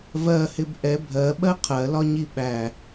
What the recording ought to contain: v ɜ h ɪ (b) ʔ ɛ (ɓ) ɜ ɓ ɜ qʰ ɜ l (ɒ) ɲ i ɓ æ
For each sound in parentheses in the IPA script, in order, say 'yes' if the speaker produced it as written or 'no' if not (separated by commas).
yes, no, yes